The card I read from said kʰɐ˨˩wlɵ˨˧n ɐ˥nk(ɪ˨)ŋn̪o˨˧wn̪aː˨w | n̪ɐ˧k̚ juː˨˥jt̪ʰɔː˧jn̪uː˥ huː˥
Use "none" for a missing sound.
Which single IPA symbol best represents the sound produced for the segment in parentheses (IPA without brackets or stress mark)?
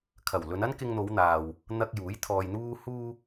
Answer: ɪ˧